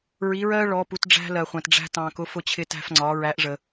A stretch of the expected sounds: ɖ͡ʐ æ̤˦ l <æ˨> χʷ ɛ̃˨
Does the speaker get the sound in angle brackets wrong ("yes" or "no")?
yes